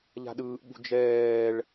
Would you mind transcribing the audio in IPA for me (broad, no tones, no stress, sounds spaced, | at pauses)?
ʎ a̤ ɗ ɯː ʔ ɓ ṳ d͡ʒ ɛː ɭ